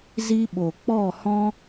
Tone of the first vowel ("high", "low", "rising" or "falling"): high